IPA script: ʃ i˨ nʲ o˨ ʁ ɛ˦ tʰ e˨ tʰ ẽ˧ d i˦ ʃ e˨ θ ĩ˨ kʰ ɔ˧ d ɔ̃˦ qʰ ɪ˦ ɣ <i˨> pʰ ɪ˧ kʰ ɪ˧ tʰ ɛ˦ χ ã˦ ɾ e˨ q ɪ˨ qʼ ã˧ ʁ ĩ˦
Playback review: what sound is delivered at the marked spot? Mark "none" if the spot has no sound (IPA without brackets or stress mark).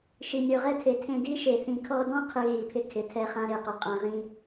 i˨